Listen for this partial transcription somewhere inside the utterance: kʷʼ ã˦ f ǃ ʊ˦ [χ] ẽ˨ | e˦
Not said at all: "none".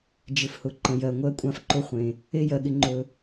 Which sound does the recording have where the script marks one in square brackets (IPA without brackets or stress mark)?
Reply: χʷ